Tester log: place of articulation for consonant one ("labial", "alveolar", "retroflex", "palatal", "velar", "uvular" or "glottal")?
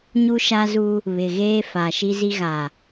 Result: palatal